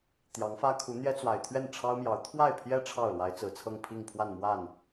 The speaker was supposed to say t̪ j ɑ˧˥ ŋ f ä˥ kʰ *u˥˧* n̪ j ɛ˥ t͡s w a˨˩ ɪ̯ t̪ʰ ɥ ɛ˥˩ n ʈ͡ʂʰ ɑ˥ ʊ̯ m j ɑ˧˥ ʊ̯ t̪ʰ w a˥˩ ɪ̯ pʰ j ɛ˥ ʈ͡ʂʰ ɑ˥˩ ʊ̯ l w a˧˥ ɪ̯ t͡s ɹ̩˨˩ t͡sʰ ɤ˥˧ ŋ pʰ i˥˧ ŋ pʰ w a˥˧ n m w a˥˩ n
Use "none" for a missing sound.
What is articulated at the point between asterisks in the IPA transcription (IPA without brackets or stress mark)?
u˧˥